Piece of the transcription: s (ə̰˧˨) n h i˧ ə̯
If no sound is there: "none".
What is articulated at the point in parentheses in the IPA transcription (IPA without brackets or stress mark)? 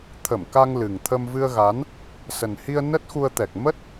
ə˨˩